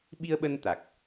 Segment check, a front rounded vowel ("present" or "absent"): absent